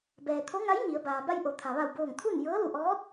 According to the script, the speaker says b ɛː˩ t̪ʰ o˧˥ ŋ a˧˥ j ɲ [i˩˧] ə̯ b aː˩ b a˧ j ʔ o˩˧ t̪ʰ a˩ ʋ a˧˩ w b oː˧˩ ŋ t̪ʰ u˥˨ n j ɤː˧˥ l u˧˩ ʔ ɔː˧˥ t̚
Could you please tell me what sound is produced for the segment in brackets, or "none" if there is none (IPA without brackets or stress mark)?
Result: i˩˧